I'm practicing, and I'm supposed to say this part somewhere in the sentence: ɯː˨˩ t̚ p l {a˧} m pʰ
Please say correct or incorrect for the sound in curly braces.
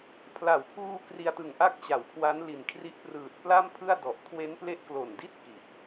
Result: incorrect